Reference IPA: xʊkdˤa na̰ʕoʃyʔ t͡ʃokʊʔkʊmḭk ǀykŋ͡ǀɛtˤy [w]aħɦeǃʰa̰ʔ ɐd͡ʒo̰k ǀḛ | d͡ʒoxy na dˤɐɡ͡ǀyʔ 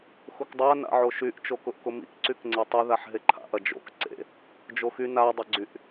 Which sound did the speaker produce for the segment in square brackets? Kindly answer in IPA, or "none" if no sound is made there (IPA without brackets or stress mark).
ð